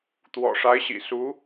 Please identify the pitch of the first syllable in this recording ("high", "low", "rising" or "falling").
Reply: low